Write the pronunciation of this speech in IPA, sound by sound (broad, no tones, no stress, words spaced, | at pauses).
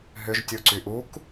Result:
ɦʏʒ tʲuǀyʔuk